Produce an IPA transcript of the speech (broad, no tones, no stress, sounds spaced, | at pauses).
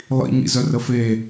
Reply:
lˠ ḭ ɲ ḭ z œ r ə f e